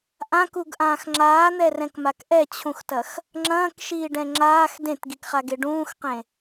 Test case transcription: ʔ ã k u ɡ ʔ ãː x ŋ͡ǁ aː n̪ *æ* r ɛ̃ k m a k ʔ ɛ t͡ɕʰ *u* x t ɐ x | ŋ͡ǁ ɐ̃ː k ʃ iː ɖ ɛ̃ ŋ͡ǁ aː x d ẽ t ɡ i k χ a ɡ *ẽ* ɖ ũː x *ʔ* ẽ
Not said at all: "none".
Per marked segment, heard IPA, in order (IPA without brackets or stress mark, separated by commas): ɛ, ũ, e, q